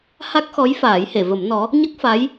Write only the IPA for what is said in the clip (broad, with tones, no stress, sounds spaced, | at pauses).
h a˦˥ k̚ x ɔ˧˥ j f aː˨˩˦ j h e˨˩˨ v ə˨˩˦ m n ɔ˧˥ | ɲ ə˦˥ k̚ f a˧˥ j